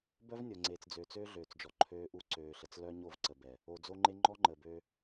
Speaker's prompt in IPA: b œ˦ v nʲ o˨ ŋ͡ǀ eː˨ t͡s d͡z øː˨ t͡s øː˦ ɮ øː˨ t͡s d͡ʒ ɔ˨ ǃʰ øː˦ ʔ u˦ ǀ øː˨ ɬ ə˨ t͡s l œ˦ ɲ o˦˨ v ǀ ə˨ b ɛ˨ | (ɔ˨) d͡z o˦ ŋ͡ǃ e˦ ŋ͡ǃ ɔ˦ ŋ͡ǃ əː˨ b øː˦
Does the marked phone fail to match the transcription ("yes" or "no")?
yes